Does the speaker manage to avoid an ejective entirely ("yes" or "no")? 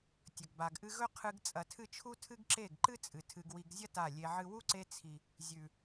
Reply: no